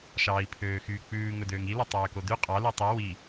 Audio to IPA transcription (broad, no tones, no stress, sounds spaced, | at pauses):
ʃ ɑː i̯ pʰ øː x yː k͡p ʉː ŋ ɵ d øː ŋ i l o tˤ øː k o d ʉ qʼ ɑ l ʉ tˤ i w i